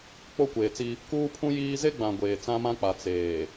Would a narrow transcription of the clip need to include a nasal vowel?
yes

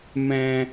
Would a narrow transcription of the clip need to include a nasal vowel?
yes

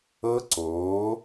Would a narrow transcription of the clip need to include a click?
yes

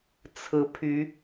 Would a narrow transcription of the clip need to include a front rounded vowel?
yes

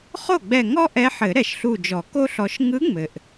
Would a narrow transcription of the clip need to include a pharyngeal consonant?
yes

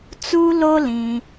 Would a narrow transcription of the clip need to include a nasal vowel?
yes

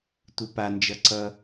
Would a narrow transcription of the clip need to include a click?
yes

